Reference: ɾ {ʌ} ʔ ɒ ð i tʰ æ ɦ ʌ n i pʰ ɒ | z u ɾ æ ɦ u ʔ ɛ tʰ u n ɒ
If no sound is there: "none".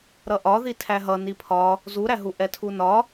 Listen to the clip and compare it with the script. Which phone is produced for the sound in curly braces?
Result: ʌ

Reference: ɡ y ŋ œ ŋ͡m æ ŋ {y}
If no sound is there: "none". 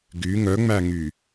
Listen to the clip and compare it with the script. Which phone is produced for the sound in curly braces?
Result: y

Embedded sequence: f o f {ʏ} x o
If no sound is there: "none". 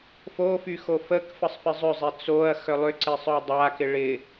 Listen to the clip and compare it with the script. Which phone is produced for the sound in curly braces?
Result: y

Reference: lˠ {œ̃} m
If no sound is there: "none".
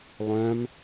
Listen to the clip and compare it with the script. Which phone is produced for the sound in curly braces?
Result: œ̃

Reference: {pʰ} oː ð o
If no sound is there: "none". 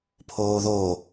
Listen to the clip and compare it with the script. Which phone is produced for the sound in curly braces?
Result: pʰ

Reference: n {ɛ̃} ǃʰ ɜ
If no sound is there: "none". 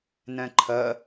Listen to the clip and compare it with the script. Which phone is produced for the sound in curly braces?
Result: ɛ̃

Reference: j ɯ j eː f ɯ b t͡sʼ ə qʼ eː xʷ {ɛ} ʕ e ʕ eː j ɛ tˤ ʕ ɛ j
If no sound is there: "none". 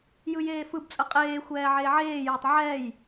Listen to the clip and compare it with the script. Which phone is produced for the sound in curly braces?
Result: ɛː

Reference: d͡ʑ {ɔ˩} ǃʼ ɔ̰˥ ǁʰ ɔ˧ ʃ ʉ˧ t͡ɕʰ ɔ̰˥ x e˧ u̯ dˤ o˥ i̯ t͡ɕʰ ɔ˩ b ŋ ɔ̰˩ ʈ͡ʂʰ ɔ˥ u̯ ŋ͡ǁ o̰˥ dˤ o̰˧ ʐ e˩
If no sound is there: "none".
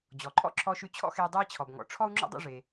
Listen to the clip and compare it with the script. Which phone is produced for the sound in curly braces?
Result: ɔ˩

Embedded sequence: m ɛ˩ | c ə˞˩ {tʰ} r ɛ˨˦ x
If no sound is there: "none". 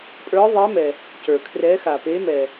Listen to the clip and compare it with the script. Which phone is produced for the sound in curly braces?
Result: kʰ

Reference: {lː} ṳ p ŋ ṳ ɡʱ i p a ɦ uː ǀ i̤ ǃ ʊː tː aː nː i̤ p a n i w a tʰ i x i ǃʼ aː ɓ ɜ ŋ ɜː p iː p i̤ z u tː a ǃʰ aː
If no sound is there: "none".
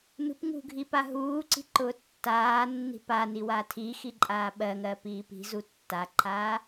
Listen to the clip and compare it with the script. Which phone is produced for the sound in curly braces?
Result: n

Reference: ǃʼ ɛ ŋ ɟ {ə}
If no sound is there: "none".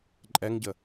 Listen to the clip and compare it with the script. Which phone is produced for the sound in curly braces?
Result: ə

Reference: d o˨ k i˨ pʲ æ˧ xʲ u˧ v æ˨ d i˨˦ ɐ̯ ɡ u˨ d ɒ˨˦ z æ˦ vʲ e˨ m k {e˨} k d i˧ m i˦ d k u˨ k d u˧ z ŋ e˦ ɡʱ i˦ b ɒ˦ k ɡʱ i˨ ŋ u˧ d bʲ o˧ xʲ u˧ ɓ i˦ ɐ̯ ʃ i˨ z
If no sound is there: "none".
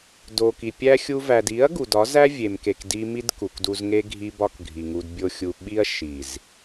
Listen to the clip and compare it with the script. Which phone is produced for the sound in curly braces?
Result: e˨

